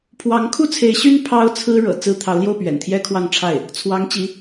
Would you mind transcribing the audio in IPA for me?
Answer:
pʰwɑ˧˥ŋkʰu˥t͡sʰe˧˥ɪ̯ ɕy˥n pʰɑ˥ʊ̯t͡sʰɹ̩˥ ɻɤ̰˨˩ t͡sɹ̩˥ t̪ʰɑ˧˥ʊ̯ljo˥˩ʊ̯pɥɛ̰˨˩n t̪ʰjɛ˥kʰwɑ˥˧ŋʈ͡ʂʰa˥˩ɪ̯ | t͡sʰwɑ˧˥ŋt͡ɕi˧˥

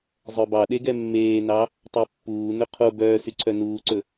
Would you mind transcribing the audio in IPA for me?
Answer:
zˤœbɑɗeɡɛ mːeːnɑ | tˤœpːuː nɵqʰo bœːsyǀʰœ nuːǀɵ

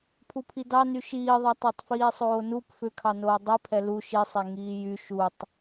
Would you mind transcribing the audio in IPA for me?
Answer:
pʰupʰidɑ nyʃiːðˤɛ tˤotˤfiːsˤoːnup fʏkʰɑnoː dˤipʰɛ lu ʃisˤe ŋiːjy ʃutˤ

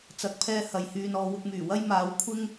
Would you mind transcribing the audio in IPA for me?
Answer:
t͡sɐ˨˥k̚pʰɛː˧hɐ˨j hyː˧nɔː˨˧ wʊ˧k̚myː˨˩wɐ˥jmaː˨˧w kʷʰɪ˥ŋ

